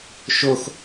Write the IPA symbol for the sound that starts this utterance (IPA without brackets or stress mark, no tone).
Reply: ʃ